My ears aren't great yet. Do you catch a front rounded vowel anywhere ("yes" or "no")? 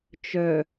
yes